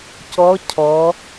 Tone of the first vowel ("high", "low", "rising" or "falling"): rising